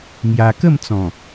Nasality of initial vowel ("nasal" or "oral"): oral